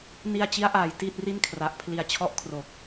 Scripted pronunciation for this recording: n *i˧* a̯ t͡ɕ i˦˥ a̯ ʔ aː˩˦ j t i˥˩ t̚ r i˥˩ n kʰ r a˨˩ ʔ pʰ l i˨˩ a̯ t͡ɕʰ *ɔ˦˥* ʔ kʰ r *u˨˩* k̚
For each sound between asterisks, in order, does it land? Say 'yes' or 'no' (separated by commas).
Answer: yes, yes, no